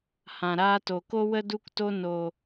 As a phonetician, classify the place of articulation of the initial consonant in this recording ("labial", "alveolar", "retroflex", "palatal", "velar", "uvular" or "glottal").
glottal